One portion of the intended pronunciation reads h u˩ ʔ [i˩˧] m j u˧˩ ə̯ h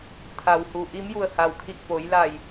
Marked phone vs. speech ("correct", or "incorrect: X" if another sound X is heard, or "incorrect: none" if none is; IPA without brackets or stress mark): incorrect: i˧˥